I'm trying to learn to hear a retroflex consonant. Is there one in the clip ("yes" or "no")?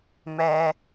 no